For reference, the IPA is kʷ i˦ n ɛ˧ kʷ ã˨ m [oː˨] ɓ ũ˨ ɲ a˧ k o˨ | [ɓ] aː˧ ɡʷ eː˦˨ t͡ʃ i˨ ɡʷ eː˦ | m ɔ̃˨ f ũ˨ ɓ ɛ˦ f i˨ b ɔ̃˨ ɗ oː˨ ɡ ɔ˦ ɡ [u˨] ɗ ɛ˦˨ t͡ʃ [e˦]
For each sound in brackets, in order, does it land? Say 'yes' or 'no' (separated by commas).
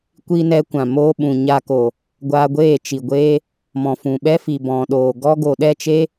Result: no, no, no, yes